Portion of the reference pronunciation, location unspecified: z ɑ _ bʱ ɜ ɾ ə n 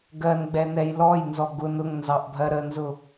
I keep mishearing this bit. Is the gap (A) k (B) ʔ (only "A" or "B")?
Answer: B